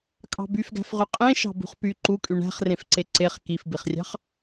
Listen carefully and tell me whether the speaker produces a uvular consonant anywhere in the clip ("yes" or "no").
yes